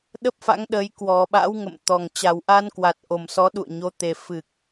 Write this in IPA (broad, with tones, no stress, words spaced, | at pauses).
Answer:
ɗə˦˥p̚fa̰˧˥ŋɗəː˨˦j kwɔ˨˩ ɓa̰˧˥w ŋə̰˧˨mt̪ɔ˨˩ŋ t͡ɕa˨˩wʔa˧nkwa˨˩t̚ʔo˨˩m sɔ˨˦ ɗṵ˧˨ə̯ɲo˨˦ t̪e˨˩fɨ˨˩k̚